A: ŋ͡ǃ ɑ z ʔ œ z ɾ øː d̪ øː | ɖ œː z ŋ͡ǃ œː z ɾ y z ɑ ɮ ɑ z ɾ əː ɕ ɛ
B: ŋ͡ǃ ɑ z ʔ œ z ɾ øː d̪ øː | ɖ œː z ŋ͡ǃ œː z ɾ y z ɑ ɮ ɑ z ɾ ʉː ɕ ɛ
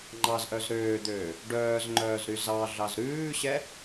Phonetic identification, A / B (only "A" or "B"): B